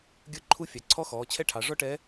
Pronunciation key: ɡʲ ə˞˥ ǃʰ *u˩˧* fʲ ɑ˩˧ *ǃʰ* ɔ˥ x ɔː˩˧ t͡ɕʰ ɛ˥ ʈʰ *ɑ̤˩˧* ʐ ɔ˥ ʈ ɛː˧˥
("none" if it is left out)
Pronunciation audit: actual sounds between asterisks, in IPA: u˥, ǀʰ, ɑ˩˧

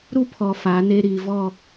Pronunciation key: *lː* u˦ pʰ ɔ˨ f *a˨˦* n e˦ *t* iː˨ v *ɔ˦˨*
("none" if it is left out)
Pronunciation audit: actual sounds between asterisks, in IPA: ɾ, a˨˦, ɾ, ɔ˦˨

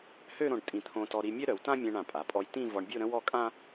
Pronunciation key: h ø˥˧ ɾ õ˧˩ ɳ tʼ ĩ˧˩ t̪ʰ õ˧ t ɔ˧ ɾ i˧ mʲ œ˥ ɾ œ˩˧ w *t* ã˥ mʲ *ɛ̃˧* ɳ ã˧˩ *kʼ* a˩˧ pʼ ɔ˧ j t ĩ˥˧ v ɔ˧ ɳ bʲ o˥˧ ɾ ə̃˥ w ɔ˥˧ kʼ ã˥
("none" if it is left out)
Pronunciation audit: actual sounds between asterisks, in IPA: t, ɛ̃˧, pʼ

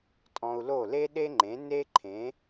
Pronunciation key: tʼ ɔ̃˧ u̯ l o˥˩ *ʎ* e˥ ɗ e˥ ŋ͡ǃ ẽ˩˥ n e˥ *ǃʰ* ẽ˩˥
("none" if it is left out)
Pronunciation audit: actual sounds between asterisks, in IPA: l, ǃʰ

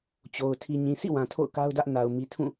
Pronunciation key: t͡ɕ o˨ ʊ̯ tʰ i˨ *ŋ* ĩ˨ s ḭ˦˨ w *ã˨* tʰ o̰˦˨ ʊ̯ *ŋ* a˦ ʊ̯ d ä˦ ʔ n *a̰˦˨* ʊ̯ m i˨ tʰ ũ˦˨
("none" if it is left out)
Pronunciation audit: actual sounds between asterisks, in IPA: ɲ, ã˨, k, a˨

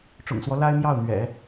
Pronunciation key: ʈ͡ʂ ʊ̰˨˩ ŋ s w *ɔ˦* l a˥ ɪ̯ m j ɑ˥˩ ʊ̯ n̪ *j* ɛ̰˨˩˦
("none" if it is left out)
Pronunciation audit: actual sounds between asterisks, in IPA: ɔ˦, ɥ

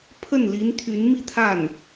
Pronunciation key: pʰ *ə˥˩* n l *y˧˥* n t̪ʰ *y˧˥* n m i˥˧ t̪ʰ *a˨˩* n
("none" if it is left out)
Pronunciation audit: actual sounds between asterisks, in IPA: ə˥˩, i˧˥, y˧˥, a˥˩

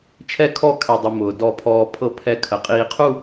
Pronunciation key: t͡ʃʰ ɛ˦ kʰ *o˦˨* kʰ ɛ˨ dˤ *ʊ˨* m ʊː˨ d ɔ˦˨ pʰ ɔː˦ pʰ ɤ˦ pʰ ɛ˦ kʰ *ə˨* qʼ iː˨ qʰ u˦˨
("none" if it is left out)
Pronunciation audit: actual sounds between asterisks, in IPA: ɔ˦˨, ʊ˨, ə˨

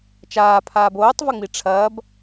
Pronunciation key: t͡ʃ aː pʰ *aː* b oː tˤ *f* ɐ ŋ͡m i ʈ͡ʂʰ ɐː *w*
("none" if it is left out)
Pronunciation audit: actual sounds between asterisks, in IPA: aː, v, b

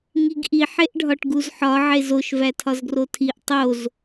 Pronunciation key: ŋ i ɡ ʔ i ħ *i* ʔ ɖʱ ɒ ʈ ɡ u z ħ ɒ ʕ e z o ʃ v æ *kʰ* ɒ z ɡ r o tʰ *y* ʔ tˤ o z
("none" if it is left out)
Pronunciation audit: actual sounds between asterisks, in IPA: e, tʰ, i

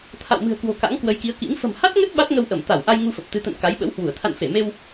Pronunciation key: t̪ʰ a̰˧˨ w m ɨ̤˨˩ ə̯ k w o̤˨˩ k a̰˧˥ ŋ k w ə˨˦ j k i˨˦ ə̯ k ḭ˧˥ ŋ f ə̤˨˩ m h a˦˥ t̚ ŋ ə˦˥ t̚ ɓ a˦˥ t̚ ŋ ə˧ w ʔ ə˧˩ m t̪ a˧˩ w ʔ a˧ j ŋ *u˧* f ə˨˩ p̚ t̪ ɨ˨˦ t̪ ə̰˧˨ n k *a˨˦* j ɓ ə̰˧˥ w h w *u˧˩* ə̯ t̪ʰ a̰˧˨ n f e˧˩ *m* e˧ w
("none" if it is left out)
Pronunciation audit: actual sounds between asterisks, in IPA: u˧, a˨˦, u˧˩, m

